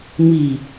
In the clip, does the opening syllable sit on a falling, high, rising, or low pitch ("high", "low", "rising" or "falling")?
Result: low